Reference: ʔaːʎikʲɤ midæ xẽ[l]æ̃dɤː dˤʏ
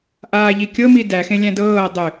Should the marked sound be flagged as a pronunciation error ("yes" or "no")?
yes